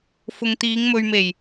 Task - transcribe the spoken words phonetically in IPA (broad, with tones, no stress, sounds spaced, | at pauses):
f ʊ˨ ŋ t̪ iː˨˧ ŋ m ɵ˨ ɥ m e˨˩ j